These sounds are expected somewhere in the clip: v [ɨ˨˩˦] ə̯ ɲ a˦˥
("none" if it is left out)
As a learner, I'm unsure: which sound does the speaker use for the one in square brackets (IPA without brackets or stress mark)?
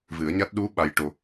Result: ɨ˨˩˦